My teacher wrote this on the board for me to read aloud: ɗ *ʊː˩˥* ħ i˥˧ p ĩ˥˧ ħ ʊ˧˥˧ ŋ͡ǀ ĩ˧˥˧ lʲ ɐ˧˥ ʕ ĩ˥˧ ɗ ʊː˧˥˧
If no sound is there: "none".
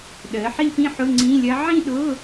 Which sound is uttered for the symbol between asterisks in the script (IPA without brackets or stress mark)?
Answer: əː˩˥